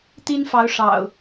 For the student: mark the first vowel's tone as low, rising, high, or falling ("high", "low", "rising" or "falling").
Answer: high